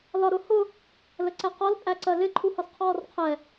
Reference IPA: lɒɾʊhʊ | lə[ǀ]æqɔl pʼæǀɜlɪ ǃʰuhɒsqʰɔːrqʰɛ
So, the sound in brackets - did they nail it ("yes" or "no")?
yes